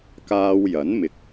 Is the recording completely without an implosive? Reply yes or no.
yes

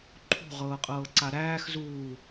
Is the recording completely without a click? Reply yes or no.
no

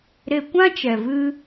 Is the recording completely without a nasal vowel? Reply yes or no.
no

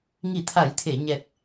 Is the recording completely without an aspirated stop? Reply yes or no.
no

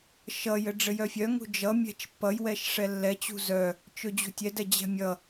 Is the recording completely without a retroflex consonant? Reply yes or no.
no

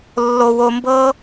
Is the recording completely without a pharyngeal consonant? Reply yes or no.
yes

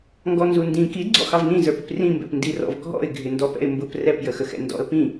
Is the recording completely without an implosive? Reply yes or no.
yes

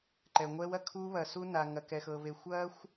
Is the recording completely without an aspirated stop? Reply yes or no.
no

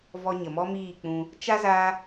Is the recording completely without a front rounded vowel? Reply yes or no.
yes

